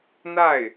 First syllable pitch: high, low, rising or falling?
falling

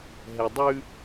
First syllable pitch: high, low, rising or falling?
low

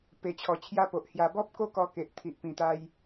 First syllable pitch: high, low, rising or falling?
low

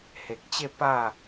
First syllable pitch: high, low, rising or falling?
low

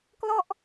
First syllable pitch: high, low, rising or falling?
falling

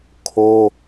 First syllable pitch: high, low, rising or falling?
high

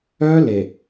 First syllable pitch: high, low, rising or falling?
high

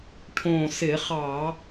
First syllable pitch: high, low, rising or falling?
low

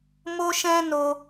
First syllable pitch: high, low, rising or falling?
high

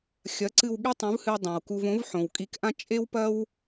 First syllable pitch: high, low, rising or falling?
rising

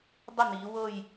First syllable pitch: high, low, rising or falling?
falling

